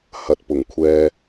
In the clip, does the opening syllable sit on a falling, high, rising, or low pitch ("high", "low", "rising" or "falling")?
low